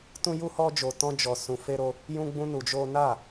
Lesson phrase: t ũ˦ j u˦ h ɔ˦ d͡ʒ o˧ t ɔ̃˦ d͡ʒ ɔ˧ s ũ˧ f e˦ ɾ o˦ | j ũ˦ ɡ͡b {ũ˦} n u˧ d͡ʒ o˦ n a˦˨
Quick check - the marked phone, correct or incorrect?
correct